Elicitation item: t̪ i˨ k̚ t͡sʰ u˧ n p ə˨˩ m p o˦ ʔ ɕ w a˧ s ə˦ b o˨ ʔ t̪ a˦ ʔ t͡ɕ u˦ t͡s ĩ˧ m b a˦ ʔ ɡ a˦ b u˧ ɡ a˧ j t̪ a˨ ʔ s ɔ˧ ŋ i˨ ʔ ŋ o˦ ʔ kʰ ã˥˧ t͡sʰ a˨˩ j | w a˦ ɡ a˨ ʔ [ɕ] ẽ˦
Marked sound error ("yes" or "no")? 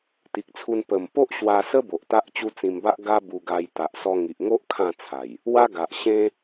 no